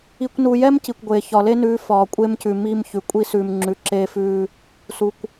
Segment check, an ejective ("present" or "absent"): present